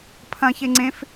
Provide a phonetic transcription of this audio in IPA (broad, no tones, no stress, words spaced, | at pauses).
pʰɐ̃çe ŋ͡ǀẽf